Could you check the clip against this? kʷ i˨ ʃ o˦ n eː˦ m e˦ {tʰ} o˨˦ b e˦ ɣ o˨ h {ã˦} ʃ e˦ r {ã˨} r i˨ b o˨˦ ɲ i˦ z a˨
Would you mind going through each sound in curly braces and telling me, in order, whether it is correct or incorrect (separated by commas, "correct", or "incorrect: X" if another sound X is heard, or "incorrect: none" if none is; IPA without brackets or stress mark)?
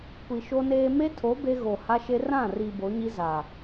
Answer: correct, incorrect: a˦, incorrect: ã˦˨